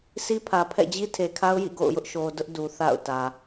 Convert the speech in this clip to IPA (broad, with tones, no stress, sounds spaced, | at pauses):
s i˦ pʰ ä˨ pʰ ɛ̰˦˨ d͡ʑ i˦ tʰ e˨ kʰ a˦ ʊ̯ j ḭ˦˨ ɡ o̰˦˨ ʊ̯ j ʊ˦ ʔ ʃ o˨ d ʊ˦ ʔ d u˨ θ a̰˦˨ ʊ̯ t ä˨